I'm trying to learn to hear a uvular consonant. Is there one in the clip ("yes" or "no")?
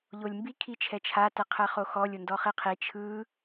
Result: yes